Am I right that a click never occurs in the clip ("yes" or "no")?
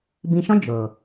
yes